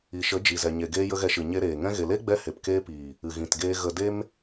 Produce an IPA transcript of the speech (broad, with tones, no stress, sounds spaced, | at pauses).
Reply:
i˨ ʃ ə˨˦ d͡ʒ i˨ z ɛ˨ ɲ e˨ ɡ eː˦ j ə˦ ɣ ɛ˧ ʃ ɨ˨ ɲ e˧ ɾ eː˨ ŋ ɛ̃˧ ɣ e˨ l e˦ ɡ͡b ɛ˧ h e˨ p k eː˧ p iː˨ | ɨ˨ ɣ ĩ˨ t ɡ eː˧ ɣ ə˧ d e˦ m